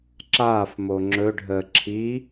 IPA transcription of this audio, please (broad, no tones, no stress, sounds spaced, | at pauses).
ǁ aː f m o ŋ͡ǁ ɵ ɖʱ əː ǁʰ i